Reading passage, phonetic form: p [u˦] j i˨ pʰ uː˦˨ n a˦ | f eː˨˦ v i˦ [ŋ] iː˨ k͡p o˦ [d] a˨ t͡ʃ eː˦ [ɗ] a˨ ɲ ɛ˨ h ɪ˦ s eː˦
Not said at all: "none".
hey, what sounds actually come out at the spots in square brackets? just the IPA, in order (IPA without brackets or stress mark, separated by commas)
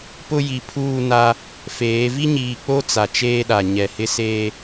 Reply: ʊ˦, ɲ, t͡s, ɗ